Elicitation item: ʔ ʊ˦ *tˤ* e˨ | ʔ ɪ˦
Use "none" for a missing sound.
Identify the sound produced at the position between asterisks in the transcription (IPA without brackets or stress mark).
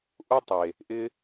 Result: tˤ